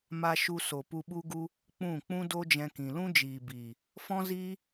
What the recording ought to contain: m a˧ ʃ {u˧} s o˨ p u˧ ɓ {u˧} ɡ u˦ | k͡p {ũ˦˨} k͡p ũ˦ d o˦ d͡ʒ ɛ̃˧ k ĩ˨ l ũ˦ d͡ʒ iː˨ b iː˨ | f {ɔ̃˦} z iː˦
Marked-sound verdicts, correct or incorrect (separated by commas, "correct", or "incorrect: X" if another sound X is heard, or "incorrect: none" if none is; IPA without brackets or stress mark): correct, incorrect: u˦, correct, correct